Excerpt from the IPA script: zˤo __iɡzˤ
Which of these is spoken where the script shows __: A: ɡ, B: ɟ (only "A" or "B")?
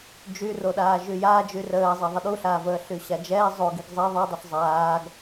A